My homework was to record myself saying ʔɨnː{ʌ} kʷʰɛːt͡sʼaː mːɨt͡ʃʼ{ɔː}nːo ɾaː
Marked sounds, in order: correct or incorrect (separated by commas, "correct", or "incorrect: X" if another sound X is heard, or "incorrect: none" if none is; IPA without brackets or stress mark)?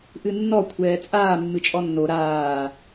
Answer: incorrect: ɔ, incorrect: ɔ